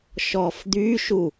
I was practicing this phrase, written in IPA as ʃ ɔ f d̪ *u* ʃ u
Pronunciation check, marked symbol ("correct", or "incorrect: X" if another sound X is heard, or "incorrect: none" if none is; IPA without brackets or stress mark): incorrect: y